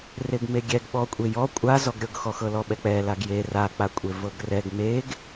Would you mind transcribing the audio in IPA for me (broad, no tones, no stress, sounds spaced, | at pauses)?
r e ɡ m e ɡʲ ɛ ɡ ɓ ɔ kʷʼ e j ɔ kʷʼ a z ɔ ɡ ɾʲ ɤ ɡ x ɔ x ɤ l ɔ ɓ ɛ k͡p ɛ l a ɡ j e r a k͡p a kʷʼ e v ɤ ɡ r ɛ ɡ m e ɡ